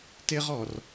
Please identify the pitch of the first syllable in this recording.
high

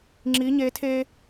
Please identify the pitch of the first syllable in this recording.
rising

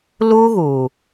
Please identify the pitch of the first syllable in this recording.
high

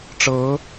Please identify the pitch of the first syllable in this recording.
rising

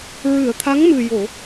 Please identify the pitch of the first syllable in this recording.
low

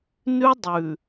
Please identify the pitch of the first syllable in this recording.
high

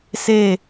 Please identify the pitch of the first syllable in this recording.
falling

